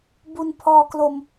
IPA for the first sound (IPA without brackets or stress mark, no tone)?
b